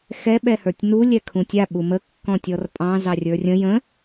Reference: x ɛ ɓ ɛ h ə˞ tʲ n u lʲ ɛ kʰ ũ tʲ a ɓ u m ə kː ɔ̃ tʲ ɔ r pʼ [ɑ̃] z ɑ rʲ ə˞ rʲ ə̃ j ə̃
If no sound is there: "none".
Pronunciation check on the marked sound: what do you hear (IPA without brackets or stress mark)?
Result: ɑ̃